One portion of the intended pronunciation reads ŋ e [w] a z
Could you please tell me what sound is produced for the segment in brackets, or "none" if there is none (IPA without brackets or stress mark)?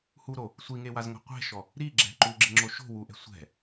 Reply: w